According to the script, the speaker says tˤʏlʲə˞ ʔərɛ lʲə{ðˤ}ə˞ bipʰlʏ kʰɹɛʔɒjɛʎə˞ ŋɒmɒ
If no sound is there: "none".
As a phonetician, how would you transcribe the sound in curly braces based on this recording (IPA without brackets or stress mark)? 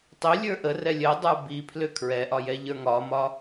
dˤ